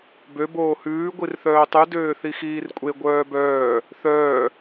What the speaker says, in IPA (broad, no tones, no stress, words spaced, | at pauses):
bø boːhʉː ɡʷirθœːtˤʉ døːθixiːrkʷʼe ɡʷœːbœː | θœː